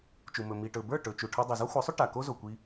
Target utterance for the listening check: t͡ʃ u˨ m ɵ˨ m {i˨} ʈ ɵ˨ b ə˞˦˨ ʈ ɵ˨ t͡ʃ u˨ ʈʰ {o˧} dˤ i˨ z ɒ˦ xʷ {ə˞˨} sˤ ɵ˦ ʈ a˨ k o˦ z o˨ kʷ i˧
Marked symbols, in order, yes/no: yes, no, no

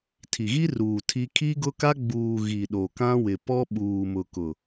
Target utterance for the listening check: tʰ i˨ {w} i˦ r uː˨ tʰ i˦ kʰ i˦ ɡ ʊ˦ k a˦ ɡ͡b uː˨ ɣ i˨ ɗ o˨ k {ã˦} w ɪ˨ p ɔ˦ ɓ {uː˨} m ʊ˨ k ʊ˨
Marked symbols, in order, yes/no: no, yes, yes

